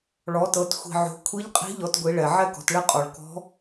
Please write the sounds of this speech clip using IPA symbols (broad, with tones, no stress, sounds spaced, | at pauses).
ɭ ɔ˩˧ t ɤ˩˧ t xʷ i̤˩ ʕ o̤˩˧ kʷʰ i˧˥ ʎ qʼ i̤˧˥ ʎ ɔ˩˧ t ɡʷ i˩˧ ɭ ɛ˩ ʕ ɛ˥ k ɔ̤˩˧ t ɭ ɛ˥ qʼ ɔ˩ ɭ k ɔ̤˧˥